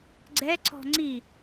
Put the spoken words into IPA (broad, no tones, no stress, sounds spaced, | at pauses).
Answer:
ɡ͡ǀ ɛ ǀ ɔ̤ ŋ͡ǀ i